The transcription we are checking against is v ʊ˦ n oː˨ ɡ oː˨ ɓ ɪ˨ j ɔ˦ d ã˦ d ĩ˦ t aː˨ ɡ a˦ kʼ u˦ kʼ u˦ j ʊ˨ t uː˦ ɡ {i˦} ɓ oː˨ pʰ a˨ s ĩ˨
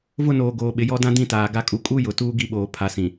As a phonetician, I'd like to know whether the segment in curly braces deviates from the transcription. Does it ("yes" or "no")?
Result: no